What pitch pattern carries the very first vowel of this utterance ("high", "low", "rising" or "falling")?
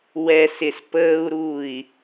low